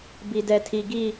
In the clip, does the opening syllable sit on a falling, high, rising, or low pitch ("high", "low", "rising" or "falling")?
low